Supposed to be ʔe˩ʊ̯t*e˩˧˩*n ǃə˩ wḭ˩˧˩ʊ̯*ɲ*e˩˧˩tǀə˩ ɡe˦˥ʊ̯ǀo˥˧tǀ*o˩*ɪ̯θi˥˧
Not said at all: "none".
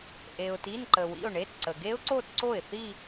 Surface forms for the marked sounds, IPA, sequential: i˩˧˩, ɳ, o˥˩

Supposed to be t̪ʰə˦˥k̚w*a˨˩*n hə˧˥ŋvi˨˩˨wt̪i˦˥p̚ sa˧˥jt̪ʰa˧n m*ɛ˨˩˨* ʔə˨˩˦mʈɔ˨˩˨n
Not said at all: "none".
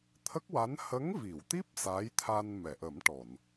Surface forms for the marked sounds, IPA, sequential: a˧˥, ɛ˨˩˨

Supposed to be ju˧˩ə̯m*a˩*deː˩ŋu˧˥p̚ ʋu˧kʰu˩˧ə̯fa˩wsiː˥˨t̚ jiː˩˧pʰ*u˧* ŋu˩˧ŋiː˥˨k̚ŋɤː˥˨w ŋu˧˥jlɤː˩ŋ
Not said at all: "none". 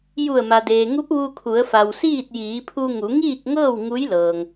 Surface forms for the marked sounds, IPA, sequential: a˩, u˧

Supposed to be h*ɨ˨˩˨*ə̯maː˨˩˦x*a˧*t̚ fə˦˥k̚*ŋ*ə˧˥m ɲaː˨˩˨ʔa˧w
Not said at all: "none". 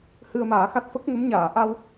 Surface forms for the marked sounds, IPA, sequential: ɨ˧, a˦˥, ŋ

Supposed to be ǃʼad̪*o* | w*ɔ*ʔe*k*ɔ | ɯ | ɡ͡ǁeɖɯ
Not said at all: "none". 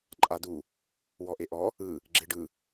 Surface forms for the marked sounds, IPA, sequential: u, ɔ, ʔ

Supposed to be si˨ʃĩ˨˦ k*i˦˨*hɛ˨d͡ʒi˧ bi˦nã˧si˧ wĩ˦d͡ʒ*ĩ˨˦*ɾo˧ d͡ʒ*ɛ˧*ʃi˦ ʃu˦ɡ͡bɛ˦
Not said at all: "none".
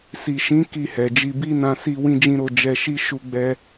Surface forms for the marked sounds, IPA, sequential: i˦˨, ĩ˦, ɛ˧

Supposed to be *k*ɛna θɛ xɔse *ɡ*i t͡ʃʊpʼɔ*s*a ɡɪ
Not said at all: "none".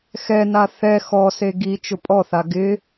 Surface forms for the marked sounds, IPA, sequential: x, ɡ, θ

